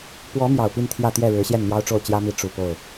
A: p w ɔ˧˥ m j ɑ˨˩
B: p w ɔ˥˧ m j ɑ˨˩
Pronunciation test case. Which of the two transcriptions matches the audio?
A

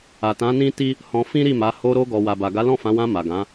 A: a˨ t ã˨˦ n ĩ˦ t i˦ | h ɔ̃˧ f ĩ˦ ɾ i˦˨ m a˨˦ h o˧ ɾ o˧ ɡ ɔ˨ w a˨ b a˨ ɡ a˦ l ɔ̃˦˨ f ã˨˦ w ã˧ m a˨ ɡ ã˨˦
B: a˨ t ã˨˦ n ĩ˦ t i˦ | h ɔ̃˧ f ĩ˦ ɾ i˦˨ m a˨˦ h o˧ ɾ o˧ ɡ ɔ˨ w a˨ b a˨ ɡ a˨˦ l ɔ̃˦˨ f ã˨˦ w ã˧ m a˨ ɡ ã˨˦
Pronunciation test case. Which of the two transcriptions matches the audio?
B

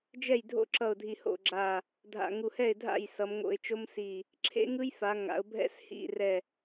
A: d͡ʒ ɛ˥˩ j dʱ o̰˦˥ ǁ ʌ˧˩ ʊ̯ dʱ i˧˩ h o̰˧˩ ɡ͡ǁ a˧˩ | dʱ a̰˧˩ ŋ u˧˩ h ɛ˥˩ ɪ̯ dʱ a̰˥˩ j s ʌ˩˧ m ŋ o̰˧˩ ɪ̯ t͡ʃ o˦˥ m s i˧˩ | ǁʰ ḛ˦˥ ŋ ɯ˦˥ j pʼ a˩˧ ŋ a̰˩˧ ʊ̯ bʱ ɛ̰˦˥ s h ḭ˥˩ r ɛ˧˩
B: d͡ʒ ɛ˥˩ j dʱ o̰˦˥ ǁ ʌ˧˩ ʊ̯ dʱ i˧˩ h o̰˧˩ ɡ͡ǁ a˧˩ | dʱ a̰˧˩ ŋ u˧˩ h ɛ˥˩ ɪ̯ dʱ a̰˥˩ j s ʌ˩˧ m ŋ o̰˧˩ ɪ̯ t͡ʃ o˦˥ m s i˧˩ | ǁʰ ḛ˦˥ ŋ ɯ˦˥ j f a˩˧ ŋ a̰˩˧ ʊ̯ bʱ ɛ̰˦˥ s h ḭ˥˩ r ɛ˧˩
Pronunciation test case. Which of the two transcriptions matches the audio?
B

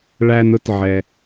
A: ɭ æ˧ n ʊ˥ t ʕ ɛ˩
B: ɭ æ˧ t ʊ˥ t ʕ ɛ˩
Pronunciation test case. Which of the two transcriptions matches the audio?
A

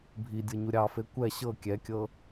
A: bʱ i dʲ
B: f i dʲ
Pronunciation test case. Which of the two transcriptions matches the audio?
A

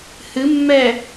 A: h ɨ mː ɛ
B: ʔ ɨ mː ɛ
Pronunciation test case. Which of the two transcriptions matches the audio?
A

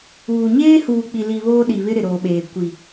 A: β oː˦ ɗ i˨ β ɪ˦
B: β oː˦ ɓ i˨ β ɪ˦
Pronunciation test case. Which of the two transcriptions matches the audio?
A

